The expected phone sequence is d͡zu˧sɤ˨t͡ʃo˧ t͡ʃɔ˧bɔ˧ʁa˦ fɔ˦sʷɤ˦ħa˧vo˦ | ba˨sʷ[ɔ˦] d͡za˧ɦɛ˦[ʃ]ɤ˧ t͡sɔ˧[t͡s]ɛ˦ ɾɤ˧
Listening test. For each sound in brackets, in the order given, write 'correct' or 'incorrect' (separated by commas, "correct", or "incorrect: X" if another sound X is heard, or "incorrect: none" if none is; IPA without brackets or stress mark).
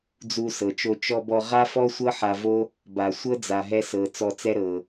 incorrect: ɤ˦, incorrect: s, correct